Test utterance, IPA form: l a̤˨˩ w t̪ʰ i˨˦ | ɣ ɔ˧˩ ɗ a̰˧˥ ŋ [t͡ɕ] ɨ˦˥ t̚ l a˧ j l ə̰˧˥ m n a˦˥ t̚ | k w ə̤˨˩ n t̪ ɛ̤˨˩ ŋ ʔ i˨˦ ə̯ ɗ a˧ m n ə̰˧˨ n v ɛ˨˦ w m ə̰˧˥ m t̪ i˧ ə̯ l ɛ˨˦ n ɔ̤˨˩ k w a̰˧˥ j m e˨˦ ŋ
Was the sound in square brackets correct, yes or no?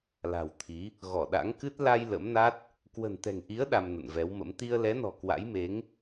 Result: no